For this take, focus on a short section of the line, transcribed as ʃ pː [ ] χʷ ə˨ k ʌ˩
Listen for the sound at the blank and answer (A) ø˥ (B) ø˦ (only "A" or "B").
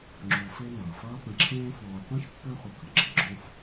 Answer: B